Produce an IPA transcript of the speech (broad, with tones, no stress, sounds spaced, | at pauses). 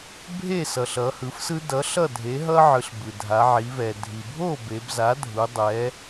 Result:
bʱ e˥˩ s ʌ˩ ɬ ʌ˩˧ h ɯ˩˥ f s ɯ˦ d ʌ˩˥ ɬ ʌ˥˩ dʱ e˩˥ ɦ ʌ˦ ʕ ɯ˩˧ ɬ b ɯ˩ dʱ a˩˧ ʕ i˩˧ v ɛ˩ dʱ i˩ bʱ o˥˩ b e˩˧ b z a˩˥ dʱ u˩˧ dˤ ɛ˩˧